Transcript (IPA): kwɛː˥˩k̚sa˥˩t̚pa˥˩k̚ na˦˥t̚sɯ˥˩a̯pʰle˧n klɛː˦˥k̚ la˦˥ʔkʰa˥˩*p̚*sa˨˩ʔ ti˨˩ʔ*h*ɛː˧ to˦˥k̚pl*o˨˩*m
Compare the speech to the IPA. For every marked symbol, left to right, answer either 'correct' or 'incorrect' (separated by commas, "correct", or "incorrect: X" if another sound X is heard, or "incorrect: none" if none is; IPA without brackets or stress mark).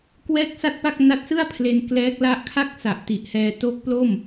incorrect: k̚, correct, incorrect: o˥˩